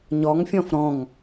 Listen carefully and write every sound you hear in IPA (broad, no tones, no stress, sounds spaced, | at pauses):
ɲ ɔ ŋ fʲ ɔ̃ f ɾ ɔ̃ ŋ